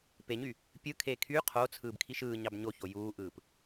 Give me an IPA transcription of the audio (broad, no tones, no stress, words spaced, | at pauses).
peɲy | pʲɯkʰeː kʰy qʰot͡sʰɯːbkʰiʃ ɯːɲɑb ɲoço juːʔɯːp